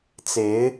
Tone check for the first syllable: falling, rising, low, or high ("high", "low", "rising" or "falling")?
rising